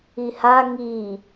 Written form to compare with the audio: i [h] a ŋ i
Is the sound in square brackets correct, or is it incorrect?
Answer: correct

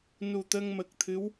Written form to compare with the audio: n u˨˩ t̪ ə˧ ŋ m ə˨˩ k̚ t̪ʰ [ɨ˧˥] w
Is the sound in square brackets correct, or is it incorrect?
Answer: correct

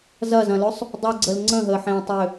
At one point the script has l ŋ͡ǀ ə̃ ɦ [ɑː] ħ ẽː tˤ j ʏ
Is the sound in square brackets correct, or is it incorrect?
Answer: incorrect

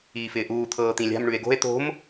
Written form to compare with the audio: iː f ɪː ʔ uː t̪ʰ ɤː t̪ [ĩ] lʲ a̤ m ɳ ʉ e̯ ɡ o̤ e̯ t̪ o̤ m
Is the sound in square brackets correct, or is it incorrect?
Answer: correct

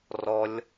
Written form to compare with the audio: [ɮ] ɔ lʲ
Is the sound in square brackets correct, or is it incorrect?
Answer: incorrect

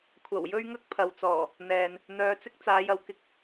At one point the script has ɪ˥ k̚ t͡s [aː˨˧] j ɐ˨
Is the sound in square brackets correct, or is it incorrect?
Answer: correct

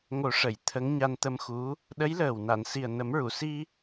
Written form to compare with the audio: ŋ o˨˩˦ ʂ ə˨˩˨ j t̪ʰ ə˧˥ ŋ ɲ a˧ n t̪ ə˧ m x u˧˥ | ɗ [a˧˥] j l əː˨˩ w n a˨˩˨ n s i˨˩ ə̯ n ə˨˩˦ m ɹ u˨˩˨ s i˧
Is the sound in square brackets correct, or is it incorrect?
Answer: incorrect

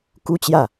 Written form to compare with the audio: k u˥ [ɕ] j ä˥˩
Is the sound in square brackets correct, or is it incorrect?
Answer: incorrect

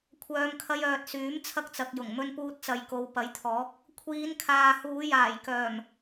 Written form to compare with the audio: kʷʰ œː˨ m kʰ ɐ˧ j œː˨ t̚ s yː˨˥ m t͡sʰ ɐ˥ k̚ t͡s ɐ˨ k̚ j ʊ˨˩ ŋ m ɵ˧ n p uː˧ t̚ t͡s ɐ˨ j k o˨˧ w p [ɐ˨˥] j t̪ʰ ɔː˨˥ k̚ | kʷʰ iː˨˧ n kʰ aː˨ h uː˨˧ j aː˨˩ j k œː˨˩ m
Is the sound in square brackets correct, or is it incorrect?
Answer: correct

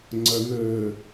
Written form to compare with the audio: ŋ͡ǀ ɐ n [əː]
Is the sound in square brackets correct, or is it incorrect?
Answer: correct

